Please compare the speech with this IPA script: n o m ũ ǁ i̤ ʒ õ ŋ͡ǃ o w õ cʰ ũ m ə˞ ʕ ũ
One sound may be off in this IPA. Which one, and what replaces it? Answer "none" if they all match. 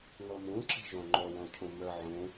none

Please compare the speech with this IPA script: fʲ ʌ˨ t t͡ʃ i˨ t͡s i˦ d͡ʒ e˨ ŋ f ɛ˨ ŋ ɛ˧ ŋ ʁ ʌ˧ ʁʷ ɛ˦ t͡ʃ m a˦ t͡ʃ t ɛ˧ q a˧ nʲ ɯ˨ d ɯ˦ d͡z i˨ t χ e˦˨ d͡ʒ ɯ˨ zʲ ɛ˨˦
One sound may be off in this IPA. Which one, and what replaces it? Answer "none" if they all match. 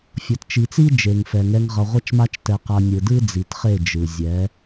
none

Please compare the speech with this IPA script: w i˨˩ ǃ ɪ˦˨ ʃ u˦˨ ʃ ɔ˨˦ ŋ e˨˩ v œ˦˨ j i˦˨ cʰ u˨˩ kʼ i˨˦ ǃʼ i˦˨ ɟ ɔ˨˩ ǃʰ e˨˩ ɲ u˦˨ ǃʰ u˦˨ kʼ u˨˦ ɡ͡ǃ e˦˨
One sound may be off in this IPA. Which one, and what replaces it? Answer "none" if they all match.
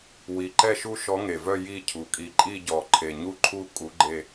ɪ˦˨ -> ɛ˦˨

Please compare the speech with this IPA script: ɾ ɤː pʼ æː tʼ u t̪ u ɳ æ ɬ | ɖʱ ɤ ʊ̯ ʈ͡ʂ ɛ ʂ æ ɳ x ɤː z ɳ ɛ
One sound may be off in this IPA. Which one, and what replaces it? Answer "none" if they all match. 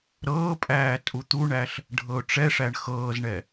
none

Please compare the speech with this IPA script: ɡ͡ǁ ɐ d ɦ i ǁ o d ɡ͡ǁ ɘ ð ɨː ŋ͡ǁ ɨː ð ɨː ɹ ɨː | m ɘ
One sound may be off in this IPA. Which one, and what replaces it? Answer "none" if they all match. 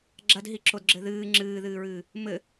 none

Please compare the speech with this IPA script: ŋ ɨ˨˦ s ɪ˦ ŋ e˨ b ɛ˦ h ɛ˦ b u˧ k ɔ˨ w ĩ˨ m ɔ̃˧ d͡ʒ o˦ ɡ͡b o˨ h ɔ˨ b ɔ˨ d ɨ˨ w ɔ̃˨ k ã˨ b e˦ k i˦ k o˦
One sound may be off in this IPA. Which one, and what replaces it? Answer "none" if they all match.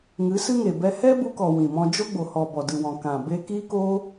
ɪ˦ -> ɨ˦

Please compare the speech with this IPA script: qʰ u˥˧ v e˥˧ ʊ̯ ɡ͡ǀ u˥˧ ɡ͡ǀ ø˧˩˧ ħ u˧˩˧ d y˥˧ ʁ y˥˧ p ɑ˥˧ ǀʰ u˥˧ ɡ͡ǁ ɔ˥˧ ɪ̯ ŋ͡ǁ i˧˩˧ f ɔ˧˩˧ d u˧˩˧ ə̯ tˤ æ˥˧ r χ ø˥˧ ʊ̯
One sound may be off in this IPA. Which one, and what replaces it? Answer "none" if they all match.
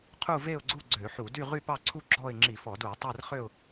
none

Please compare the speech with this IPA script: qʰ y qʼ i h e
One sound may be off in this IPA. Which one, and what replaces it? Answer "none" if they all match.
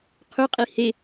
none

